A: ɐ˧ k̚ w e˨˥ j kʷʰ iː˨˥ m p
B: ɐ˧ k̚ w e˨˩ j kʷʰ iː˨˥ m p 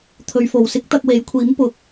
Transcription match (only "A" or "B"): A